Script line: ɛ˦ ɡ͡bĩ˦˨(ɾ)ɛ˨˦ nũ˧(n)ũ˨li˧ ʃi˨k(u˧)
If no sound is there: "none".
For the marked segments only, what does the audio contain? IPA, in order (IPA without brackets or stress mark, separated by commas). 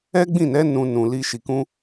n, n, ũ˧